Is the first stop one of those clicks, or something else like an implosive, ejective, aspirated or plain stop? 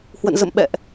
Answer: implosive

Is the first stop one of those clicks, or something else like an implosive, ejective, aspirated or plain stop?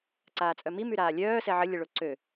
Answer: click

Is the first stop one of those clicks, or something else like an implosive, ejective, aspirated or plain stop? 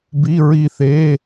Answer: plain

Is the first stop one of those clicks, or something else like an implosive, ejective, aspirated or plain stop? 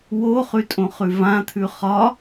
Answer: ejective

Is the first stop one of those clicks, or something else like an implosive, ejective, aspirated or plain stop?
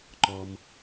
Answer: click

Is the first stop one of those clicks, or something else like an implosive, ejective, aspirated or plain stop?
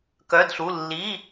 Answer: plain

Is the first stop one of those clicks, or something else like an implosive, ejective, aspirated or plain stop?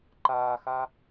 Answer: click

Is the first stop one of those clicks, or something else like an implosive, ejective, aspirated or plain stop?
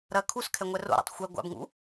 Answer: aspirated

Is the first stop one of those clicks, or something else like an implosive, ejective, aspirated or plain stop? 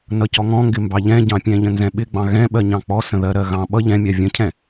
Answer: plain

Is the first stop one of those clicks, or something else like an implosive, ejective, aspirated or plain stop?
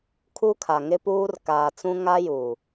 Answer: aspirated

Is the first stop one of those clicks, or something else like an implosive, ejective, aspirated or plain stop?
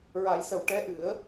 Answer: plain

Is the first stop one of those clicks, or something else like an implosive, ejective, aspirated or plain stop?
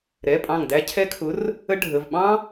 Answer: ejective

